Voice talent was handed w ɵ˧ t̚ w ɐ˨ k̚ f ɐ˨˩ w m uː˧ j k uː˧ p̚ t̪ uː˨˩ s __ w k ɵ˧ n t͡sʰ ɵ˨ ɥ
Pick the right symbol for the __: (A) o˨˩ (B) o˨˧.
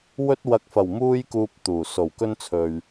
A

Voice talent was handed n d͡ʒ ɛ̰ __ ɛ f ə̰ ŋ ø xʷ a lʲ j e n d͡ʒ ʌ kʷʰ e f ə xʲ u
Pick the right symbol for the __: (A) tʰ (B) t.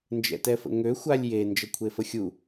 B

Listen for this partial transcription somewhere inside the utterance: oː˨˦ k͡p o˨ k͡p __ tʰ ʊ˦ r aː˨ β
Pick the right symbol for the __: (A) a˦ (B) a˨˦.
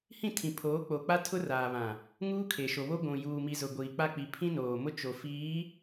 A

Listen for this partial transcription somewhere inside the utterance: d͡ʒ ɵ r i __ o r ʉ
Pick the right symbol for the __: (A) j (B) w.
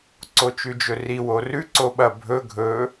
B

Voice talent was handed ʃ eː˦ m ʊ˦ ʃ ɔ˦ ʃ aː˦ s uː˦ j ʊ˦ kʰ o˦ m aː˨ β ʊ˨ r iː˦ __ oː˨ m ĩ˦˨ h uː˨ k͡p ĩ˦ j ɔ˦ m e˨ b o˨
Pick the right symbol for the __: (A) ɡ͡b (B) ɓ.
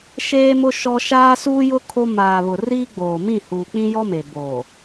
A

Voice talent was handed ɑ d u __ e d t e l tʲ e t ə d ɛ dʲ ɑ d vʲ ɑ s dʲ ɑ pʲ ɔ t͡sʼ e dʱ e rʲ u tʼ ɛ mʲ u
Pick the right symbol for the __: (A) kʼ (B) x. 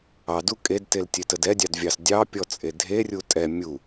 A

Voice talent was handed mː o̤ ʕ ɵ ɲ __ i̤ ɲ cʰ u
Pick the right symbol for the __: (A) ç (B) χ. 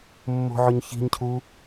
A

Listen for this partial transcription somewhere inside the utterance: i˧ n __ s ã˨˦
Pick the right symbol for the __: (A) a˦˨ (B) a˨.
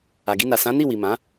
B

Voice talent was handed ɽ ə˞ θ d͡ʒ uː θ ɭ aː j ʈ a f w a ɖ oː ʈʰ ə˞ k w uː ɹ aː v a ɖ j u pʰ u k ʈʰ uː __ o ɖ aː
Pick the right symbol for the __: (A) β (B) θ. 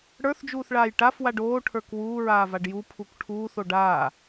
B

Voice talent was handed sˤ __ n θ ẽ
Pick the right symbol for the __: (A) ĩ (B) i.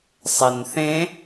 B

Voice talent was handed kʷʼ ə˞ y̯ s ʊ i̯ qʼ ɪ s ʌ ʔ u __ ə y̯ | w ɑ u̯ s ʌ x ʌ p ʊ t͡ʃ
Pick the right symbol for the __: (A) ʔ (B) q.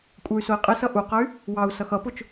B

